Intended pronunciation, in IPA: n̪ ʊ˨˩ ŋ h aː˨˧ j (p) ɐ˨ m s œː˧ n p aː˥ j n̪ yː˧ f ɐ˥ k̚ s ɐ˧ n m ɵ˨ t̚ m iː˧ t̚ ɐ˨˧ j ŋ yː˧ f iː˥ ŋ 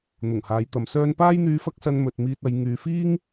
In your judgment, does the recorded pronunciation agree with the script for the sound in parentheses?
no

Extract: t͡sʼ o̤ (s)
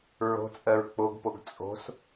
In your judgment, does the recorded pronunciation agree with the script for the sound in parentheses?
yes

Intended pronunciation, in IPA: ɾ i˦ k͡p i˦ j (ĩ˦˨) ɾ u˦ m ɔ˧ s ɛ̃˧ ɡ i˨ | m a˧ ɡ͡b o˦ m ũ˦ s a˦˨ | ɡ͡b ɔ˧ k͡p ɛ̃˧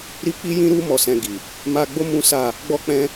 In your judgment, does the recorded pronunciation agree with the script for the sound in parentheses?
no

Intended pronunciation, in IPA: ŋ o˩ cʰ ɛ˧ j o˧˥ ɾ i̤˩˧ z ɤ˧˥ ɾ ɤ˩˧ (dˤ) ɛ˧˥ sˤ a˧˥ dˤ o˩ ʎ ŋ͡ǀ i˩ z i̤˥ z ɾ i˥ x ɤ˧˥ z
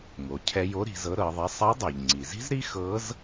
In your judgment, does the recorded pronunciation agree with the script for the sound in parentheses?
no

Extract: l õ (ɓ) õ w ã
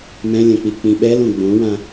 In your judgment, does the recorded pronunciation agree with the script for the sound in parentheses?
no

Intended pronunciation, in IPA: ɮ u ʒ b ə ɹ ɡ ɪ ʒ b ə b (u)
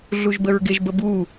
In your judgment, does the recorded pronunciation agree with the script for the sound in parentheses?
yes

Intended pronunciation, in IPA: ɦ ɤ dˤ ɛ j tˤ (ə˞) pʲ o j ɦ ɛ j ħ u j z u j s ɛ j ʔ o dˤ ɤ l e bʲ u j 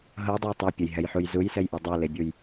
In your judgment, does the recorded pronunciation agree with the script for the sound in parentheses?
no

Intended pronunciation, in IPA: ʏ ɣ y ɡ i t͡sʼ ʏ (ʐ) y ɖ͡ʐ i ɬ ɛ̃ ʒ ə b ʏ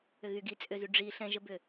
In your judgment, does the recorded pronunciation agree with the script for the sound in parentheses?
no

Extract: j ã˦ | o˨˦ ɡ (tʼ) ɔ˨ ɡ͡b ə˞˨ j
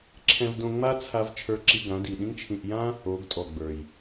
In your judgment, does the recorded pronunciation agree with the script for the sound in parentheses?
yes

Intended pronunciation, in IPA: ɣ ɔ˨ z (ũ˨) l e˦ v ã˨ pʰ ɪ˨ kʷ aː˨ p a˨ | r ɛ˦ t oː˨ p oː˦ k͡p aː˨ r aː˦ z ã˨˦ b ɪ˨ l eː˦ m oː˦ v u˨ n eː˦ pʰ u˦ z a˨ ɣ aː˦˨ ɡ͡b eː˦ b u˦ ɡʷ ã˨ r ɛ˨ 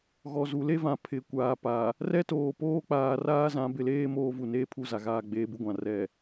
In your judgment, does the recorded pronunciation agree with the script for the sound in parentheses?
no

